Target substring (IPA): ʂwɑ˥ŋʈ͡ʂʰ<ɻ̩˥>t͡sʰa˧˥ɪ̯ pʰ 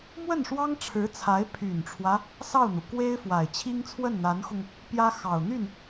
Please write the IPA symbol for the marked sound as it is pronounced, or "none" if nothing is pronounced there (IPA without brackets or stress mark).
ɻ̩˧˥